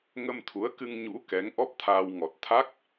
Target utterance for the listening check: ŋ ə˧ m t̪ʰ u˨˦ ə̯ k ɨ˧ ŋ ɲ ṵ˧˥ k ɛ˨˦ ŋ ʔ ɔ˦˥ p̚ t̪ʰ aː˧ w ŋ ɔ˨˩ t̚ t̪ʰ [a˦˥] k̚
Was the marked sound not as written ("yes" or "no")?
no